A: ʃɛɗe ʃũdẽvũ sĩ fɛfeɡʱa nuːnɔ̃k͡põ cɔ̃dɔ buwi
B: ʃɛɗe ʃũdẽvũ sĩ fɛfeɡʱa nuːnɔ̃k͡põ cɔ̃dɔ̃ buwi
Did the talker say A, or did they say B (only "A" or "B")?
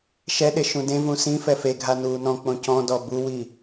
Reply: A